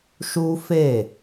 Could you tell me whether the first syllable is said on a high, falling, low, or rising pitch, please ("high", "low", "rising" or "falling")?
high